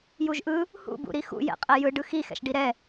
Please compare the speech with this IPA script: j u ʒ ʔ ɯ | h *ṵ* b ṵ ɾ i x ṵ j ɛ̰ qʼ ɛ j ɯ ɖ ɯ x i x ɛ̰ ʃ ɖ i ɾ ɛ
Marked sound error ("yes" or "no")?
no